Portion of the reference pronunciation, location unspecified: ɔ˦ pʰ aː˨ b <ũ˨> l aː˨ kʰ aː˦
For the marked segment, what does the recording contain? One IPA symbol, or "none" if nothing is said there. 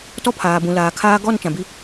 ũ˨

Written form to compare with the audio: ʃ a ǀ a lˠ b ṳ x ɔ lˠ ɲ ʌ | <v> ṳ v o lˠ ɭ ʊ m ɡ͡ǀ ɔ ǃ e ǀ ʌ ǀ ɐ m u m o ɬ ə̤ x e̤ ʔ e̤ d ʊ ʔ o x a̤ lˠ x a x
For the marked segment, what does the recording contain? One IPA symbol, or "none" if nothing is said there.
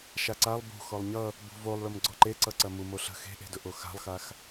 b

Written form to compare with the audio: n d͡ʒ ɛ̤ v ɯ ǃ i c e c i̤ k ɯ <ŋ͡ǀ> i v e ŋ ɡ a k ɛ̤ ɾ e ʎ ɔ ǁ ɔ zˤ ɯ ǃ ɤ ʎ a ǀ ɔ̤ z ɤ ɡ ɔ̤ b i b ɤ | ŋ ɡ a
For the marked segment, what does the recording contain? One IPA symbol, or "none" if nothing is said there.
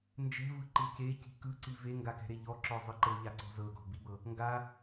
ǀ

